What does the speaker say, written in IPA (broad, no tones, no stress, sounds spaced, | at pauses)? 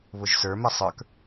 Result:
β ʊ ʒ s ə˞ m ɛ sˤ ə˞ k